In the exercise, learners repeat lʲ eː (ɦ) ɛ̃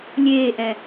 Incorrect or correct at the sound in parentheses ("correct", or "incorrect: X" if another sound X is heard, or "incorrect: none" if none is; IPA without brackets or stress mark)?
incorrect: ʔ